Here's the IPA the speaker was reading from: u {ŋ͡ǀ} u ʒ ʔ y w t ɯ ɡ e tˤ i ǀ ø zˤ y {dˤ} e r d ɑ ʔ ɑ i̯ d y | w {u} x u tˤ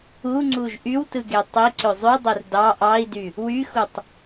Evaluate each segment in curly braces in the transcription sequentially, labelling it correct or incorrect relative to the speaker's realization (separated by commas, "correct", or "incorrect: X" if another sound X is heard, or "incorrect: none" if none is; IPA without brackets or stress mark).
correct, correct, incorrect: y